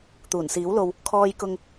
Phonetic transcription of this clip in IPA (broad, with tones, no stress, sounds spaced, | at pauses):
t̪ uː˨˩ n s iː˨˥ w l o˧ w | kʰ ɔː˧ j k ʊ˧ ŋ